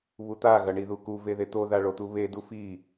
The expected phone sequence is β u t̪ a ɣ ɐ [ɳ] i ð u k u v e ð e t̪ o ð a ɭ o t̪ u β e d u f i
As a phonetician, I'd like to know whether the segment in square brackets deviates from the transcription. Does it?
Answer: no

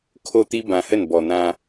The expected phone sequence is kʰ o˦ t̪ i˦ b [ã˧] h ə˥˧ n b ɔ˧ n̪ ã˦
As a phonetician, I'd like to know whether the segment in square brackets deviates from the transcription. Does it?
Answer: no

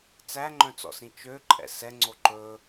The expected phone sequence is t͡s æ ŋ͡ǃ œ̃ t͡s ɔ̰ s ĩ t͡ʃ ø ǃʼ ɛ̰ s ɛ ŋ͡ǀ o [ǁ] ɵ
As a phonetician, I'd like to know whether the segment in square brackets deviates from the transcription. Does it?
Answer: yes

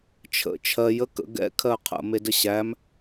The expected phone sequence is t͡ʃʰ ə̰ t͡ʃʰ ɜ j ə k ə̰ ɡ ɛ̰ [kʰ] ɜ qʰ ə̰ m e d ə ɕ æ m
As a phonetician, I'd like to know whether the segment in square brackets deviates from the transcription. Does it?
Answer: no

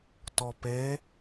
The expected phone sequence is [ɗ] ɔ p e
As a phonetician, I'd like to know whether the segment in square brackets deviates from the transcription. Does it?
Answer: yes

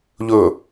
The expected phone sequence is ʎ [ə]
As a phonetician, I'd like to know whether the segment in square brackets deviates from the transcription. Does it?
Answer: yes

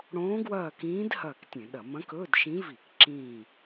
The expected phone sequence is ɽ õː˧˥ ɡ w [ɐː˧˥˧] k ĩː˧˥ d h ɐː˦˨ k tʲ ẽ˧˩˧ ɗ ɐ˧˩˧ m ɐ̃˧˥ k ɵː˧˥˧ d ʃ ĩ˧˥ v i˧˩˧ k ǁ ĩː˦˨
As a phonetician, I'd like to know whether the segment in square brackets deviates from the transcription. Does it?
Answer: yes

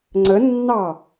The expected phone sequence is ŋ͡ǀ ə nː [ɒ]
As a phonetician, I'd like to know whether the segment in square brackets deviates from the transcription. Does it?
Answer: yes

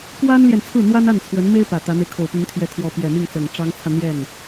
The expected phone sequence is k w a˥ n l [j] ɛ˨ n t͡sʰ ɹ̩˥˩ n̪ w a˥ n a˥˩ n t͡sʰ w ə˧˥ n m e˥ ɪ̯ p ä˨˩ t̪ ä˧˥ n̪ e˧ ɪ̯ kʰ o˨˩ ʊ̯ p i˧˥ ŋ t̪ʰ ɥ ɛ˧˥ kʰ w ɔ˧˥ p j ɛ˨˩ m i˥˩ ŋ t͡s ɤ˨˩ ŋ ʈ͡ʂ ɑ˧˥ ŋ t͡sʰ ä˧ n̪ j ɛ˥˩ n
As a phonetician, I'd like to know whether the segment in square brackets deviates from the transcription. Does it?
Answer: no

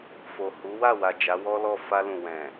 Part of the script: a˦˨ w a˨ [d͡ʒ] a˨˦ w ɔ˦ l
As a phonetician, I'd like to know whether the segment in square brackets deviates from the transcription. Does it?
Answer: no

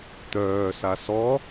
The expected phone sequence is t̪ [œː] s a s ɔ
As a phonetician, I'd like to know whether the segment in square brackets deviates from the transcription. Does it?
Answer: no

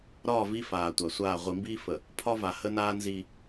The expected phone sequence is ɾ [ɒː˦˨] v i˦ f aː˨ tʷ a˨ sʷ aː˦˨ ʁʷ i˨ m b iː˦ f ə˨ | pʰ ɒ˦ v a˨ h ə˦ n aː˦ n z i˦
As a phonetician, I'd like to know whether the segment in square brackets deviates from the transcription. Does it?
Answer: no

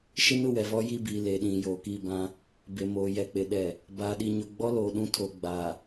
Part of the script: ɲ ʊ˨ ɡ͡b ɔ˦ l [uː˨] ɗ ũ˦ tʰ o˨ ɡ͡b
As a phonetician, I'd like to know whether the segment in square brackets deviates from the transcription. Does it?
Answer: yes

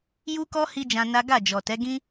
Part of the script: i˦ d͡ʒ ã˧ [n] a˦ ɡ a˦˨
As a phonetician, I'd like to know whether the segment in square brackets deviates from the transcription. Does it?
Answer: no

